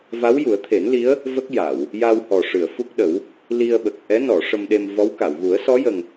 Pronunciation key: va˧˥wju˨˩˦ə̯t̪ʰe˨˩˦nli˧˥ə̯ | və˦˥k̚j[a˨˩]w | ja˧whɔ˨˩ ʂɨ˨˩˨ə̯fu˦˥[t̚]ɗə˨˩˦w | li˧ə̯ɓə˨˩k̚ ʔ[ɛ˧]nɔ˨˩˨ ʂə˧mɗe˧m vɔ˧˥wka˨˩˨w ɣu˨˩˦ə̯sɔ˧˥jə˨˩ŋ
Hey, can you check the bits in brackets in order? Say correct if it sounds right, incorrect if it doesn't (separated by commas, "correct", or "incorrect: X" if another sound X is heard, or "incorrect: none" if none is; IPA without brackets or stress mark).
incorrect: a˨˩˨, incorrect: k̚, incorrect: ɛ˧˥